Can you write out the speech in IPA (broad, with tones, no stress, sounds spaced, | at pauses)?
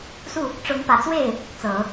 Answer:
s u˥˩ | ʈ͡ʂ ʊ˧˥ ŋ p ä˨˩ t͡s w e˥˩ ɪ̯ | t͡s ɤ˨˩˦